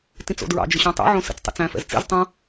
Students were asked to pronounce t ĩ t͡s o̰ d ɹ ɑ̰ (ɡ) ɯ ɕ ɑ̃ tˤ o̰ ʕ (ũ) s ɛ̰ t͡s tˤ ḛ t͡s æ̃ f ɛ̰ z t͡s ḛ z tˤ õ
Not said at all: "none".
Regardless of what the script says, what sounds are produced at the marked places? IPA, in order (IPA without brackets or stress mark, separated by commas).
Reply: d͡ʒ, õ